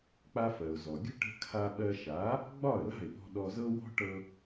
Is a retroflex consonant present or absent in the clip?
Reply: present